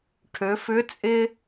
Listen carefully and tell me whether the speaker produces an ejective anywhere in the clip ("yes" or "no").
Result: yes